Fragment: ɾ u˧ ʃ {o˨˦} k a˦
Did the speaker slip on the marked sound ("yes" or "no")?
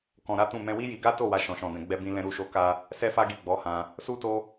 yes